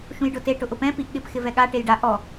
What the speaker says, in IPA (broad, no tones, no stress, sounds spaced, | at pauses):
ʃ ũ j ɖ ʊ t e ʈ ʊ ʔ ʊ p ɛ̃ p i ʔ ɠ ɪ p x ɪ v ɛ ɠ a ʈ e j ɖ a ʔ ɔ